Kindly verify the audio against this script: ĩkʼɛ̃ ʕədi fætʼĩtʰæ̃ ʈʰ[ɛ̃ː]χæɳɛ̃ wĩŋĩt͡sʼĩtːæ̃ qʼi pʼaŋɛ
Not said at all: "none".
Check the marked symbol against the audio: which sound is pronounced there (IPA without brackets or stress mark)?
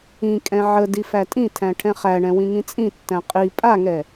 ɛ̃